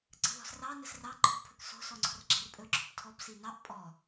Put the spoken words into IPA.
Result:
ǀ ə̤ ð ɔ̤ s r ɑ n ə s r ɑ ǃʰ o̤ pʰ ɵ k s o̤ s ɔ ŋ͡ǀ ɔ̤ r ɡ͡ǁ ɛ̤ r pʼ ɵ ǁ ɔ̤ p tʰ ɔ b s i n ɑ ʔ pʼ ɔ

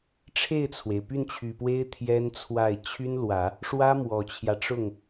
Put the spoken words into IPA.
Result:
ʈ͡ʂʰ e˥˩ ɪ̯ t͡sʰ w e˩ ɪ̯ p y˥˩ n t͡ɕʰ y˨˩ p w e˥ ɪ̯ t̪ʰ j ɛ˥ n t͡sʰ w a˥˩ ɪ̯ t͡ɕʰ y˥ n l w ä˨˩˦ | ʂ w ä˥ m w ɔ˨˩ t͡ɕʰ j ä˦ ʈ͡ʂ ʊ˥˩ ŋ

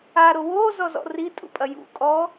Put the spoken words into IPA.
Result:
a ɾ o w o z ɔ z ɔ̰ r i tʼ ṵ pʼ ɐ j ṵ kʼ ɔ

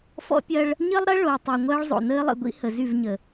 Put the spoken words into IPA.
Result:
f ɔ̰˦ pʲ ɐ˦ ɭ | ɲ ə˦ lˠ ɾ ɐ˦ ɭ o˨ tˤ əː˨ ŋʷ ɐː˦ ɭ zˤ o̰˨ n əː˦ lˠ ə̰˨ ɡʷ ḭ˦ h ə˨ z y˦˨ v ɲ ə˨

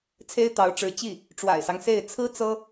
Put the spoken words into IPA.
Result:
t͡sʰ e˥ ɪ̯ t̪ ɑ˧˥ ʊ̯ ʈ͡ʂ ɻ̩˧˥ t͡ɕ i˥˩ | ʈ͡ʂ w a̰˨˩ ɪ̯ s ɑ˦ ŋ s e˥˩ ɪ̯ t͡sʰ ɹ̩˥ t͡s ɤ˥

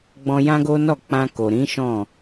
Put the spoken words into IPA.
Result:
ɡ͡b ɔ̃˧ j ã˦ ɡ o˦ n ɔ˦˨ k͡p ã˧ k o˨ ɾ ĩ˨˦ ʃ ɔ̃˦˨

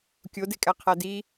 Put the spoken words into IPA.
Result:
kʲ o d e kʼ æ qʰ æ d i

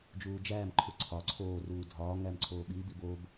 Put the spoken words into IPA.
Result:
d͡ʒ uː d͡ʒ æː m ǃʰ u ǀʰ ɒ ǀʰ oː r uː dʱ ɒː ŋ æ m ǀʰ oː ɓ i b i b o b

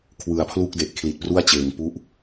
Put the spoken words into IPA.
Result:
kʰ w ɯ˩˦ a̯ pʰ l u˥˩ k̚ d e˨˩ ʔ kʰ l i˨˩ t̚ p r u˥˩ a̯ t͡ɕ eː˩˦ ŋ p u˦˥ ʔ

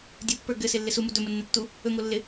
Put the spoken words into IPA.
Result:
dʲ u pː ə˞ ɡ ɘ s ɪ lː ɪ s u m u d ɵ m ə nː ɘ tː u | ɵ ŋ o lː ɪ

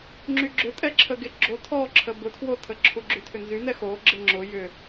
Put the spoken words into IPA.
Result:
ŋ͡ǁ y ɡ͡ǁ ʏ tʼ ɛ ǁʰ ə ɡ e ɡ͡ǁ o tʰ ɔ ǁʰ ə b ʊ tʰ w o tʰ ə ǁʰ u ɡ͡ǁ y tʰ ʏ n z y n ɛ x o ɡ͡ǁ ɪ ŋ͡ǁ ʊ j ʏ

